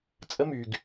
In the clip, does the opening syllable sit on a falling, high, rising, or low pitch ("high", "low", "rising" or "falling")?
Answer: high